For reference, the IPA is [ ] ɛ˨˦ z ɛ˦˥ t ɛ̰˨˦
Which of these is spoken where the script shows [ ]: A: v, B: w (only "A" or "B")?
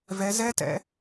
A